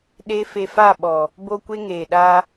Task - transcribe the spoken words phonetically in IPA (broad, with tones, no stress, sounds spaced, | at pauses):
ɗ e˦ f e˧ f a˦˨ ɓ ɔ˨ | b o˦ kʷ e˦ ŋ eː˨ ɗ a˧